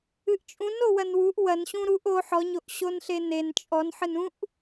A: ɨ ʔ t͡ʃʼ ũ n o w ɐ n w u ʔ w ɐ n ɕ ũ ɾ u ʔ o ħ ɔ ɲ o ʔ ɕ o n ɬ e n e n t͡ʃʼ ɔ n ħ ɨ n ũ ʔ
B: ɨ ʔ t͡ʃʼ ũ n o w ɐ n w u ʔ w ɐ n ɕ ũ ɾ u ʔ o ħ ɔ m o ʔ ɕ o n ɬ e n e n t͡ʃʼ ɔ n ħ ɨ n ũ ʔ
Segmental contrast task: A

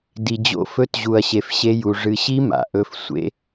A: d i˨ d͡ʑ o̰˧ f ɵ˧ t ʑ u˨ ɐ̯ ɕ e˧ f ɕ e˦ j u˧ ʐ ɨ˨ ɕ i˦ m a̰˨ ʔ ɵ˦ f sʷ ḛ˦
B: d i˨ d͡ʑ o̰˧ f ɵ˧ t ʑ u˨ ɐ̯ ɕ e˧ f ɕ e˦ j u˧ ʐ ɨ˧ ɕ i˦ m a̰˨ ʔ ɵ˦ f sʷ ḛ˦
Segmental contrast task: B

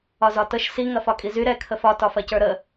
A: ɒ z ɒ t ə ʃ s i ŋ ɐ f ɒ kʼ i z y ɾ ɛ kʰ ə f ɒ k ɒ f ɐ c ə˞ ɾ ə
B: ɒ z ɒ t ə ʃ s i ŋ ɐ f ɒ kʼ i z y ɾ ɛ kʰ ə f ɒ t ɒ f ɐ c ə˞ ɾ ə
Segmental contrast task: B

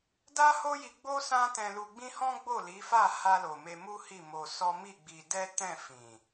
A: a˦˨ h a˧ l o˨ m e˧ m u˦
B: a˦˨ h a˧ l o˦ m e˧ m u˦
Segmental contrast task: A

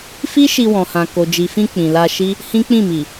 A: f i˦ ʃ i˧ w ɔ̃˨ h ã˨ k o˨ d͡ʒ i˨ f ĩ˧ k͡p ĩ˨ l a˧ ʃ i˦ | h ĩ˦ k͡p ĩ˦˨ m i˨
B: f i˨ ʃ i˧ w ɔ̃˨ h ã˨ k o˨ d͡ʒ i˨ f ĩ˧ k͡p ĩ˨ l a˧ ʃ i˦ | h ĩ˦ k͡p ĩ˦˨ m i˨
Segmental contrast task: A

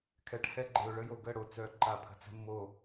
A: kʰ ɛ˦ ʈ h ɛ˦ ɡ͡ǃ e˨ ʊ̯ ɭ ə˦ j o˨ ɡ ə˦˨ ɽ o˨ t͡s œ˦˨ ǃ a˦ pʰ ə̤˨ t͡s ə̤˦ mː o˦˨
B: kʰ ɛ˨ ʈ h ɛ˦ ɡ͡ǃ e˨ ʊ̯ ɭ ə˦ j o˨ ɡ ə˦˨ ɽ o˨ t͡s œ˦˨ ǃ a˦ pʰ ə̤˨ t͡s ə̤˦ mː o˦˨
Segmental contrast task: B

